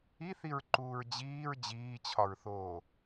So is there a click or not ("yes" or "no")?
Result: yes